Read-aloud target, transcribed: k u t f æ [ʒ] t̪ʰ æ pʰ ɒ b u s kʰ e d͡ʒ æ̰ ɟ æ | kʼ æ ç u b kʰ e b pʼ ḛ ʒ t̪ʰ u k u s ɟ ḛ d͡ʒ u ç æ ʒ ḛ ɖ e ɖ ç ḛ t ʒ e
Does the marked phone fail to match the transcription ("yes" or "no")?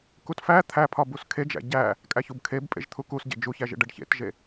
yes